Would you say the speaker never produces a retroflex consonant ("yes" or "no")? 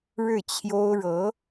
no